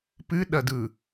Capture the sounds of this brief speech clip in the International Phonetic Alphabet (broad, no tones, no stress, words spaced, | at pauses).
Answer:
pɨɗɐd ɯ